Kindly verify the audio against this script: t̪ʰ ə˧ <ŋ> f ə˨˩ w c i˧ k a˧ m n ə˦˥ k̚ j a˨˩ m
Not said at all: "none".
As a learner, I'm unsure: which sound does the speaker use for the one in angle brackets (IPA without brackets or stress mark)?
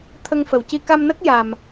ŋ